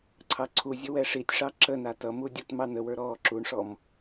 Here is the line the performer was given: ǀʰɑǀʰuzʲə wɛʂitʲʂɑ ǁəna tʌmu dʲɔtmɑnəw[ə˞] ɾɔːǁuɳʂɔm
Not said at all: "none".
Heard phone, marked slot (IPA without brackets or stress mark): ə˞